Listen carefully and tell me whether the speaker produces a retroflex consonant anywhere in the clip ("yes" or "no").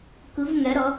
no